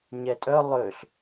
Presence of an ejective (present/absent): present